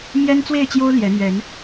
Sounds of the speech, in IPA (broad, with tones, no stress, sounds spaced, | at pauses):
m j ɛ˦ n t͡s w e˥˨ ɪ̯ t͡ɕ j o˦ ʊ̯ l j ɛ˨˦ n̪ ɥ ɛ˨˦ n